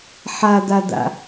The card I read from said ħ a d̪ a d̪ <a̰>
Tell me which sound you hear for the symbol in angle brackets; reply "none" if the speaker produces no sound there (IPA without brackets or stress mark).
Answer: a̰